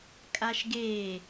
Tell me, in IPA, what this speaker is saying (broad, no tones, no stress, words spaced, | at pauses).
kʼaʃɡe